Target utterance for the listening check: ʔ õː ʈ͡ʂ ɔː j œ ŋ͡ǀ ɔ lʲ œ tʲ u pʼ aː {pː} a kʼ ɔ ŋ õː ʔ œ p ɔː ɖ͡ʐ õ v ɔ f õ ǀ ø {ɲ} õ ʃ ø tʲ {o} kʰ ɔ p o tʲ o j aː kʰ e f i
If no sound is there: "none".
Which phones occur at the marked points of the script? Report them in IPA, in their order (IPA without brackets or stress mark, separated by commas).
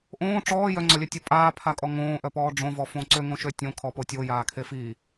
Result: pʰ, ŋ, õ